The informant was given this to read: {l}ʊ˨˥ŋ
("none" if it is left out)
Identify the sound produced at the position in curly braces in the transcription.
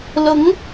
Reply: l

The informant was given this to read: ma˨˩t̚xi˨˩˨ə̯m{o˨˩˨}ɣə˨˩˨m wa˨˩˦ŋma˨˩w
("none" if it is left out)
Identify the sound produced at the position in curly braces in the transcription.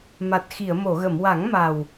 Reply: o˨˩˨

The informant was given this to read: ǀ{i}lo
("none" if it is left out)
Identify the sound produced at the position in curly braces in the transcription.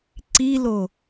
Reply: i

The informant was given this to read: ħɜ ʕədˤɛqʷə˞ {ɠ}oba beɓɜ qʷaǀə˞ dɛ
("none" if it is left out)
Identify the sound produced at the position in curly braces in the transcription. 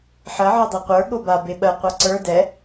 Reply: ɠ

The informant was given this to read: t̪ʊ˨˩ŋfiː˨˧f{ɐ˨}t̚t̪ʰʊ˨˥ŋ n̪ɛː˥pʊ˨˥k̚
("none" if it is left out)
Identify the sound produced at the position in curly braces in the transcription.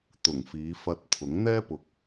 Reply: ɐ˧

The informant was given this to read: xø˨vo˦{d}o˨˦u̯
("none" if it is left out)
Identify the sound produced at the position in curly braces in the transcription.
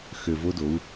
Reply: d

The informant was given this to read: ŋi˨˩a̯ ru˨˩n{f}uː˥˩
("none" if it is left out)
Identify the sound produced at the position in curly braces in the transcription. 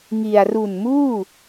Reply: m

